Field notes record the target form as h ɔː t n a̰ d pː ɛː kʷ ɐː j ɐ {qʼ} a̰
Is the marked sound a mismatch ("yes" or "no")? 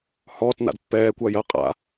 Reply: no